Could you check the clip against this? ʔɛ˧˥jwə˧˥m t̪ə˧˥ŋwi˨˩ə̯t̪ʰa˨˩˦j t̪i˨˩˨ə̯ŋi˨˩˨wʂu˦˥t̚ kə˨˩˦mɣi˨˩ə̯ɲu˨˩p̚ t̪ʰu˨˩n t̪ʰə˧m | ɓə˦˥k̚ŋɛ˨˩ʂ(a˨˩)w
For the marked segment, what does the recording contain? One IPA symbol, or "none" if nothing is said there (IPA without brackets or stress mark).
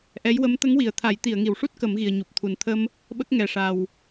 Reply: a˨˩